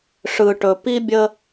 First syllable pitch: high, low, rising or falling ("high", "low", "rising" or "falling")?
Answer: low